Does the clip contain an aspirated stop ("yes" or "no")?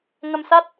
no